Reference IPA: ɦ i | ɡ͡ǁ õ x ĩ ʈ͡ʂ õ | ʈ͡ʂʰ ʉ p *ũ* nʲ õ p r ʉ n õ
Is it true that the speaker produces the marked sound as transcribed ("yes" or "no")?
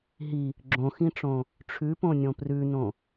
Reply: no